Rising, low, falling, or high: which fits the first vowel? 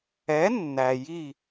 rising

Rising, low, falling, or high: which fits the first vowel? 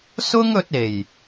high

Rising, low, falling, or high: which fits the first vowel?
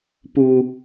low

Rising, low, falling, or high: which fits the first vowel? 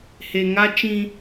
low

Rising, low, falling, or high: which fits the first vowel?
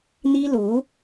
high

